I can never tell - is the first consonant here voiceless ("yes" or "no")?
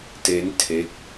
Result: yes